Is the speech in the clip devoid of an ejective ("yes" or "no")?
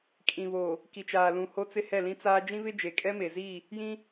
no